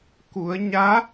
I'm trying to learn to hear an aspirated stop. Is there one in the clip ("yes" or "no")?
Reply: no